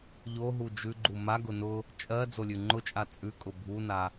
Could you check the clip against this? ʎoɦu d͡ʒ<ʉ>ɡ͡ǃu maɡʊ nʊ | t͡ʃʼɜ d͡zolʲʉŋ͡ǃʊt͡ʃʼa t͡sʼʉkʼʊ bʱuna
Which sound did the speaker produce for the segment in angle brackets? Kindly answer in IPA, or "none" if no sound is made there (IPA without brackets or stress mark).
ʉ